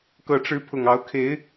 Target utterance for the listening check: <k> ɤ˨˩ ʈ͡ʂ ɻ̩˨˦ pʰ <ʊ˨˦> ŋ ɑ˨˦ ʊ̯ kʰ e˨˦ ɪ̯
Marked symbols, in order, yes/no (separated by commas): yes, no